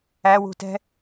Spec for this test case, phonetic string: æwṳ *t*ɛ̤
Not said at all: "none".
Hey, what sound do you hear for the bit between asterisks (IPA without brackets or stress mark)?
t